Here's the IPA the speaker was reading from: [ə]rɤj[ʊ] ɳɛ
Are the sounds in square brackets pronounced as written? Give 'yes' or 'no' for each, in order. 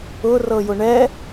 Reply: no, yes

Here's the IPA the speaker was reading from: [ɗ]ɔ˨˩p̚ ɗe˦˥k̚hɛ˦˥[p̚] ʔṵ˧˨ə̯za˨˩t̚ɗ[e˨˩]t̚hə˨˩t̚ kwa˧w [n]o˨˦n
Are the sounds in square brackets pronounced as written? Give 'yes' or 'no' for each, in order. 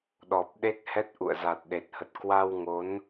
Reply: yes, no, yes, no

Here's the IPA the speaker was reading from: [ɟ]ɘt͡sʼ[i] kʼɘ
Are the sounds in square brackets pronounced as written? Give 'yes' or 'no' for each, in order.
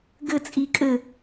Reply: no, yes

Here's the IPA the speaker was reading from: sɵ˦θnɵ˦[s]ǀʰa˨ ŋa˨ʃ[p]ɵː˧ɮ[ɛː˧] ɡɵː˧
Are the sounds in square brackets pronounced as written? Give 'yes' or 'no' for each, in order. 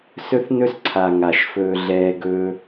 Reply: yes, no, yes

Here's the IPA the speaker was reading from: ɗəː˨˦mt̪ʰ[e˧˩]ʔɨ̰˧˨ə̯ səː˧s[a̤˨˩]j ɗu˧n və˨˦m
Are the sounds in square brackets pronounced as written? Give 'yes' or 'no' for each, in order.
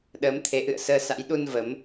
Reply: no, no

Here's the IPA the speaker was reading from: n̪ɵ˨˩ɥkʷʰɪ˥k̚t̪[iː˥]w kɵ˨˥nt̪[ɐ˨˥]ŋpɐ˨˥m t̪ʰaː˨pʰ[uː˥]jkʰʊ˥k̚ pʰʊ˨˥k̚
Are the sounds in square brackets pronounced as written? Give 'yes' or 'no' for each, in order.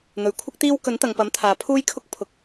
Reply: yes, no, yes

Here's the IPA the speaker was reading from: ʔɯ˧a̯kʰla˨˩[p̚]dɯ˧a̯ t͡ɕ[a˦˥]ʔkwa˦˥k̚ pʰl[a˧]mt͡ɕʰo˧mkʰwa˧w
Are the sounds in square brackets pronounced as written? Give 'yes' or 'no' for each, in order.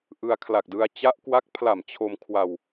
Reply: no, yes, no

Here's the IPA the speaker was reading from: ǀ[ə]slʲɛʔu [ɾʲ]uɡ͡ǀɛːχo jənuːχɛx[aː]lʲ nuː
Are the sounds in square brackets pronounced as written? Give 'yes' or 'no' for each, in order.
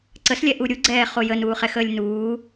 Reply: yes, yes, no

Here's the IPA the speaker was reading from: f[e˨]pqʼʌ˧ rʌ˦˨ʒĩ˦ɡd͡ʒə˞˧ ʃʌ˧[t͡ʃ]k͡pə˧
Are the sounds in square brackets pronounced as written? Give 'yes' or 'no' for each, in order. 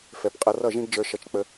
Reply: no, yes

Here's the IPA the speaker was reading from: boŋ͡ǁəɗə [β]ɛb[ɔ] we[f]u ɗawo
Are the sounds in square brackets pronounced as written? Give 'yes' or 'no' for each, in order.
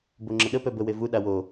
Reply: no, no, no

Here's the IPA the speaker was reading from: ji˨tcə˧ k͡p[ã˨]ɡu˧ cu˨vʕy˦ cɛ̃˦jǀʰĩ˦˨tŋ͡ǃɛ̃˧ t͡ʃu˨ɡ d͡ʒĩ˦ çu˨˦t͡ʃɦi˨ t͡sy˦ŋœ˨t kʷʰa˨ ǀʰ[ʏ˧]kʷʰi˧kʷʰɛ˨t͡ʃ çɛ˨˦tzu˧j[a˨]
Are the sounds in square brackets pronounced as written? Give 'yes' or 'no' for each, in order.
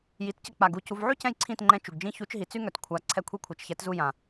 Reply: no, no, no

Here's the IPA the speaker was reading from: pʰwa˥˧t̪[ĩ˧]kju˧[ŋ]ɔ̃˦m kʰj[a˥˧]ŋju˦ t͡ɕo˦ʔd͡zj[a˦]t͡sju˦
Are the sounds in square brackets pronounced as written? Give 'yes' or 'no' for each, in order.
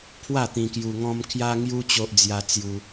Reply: yes, yes, no, yes

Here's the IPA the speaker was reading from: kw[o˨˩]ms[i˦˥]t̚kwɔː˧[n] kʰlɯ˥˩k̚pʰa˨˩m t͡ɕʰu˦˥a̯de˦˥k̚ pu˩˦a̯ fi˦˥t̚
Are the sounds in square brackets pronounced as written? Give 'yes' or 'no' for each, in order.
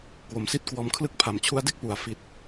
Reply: no, no, no

